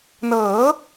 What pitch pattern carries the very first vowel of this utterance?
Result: rising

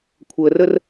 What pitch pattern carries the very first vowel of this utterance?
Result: low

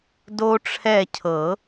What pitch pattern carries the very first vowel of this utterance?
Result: high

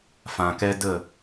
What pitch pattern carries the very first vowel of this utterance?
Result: low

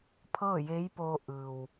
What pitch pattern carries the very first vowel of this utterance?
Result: falling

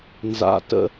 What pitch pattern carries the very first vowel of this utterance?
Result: low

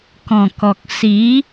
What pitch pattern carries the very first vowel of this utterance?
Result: low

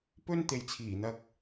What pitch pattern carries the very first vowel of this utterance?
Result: high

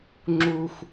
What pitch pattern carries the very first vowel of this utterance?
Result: low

